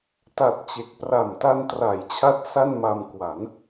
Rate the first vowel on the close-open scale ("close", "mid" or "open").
open